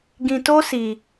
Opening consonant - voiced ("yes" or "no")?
yes